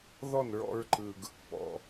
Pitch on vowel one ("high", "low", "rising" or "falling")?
falling